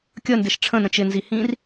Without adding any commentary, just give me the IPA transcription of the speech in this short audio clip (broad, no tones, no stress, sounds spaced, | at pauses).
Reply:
kʲ ə n d ɪ ʃ ʈ͡ʂʰ ə̃ n ə̃ t͡ʃ ɪ n z i h ĩː r